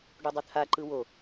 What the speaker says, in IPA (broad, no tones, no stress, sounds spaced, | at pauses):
ɖ u dˤ ɵ t̪ʰ a ǃ ɯ w o